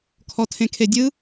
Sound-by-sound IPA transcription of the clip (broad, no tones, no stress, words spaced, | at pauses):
kʰɔtʰẽkʰedʲɯ